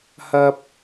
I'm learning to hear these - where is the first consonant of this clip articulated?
throat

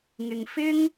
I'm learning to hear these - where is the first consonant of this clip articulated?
velum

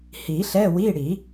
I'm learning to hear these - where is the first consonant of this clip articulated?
throat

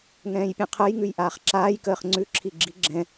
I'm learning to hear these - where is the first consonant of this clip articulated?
velum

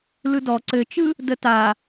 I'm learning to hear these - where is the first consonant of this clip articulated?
tongue tip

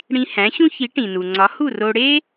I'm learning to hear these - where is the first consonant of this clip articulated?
retroflex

